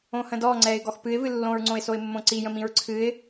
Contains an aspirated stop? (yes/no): yes